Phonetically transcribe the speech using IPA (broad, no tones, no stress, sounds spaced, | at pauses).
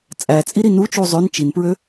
t͡sʼ æ t͡sʼ i ɾ i n u t͡ʃ u zˤ ø n t͡ʃ i n p ɹ ø